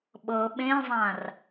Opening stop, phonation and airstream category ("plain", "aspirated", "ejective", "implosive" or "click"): implosive